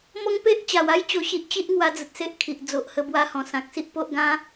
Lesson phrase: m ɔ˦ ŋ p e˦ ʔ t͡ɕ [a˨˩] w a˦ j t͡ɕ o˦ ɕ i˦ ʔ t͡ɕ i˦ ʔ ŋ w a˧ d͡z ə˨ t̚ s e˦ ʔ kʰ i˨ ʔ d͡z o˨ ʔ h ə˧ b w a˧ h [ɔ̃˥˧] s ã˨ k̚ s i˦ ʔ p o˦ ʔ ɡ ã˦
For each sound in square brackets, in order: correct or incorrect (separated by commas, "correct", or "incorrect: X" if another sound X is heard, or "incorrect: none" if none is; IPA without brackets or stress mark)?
correct, incorrect: ɔ̃˨˩